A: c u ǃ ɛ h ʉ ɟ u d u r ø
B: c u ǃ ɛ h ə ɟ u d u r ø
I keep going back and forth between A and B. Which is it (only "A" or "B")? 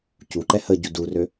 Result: B